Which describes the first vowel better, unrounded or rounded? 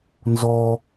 rounded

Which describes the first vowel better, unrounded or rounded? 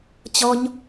rounded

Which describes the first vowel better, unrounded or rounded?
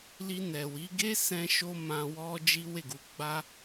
unrounded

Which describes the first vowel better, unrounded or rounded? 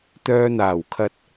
rounded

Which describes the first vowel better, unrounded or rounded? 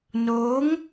rounded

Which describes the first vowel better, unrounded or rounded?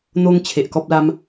rounded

